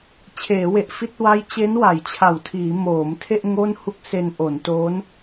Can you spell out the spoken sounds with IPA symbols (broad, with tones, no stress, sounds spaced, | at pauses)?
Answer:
t͡ɕʰ eː˩˦ w e˨˩ ʔ f i˦˥ t̚ w a˦˥ j t͡ɕ e˦˥ n w a˩˦ j t͡ɕʰ a˨˩ w tʰ iː˩˦ m oː˩˦ m tʰ e˥˩ ʔ ŋ o˥˩ n h u˥˩ k̚ s e˧ n ʔ o˩˦ n t o˦˥ n